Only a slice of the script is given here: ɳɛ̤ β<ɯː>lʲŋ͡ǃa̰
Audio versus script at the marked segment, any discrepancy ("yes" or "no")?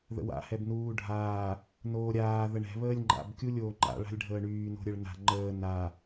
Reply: yes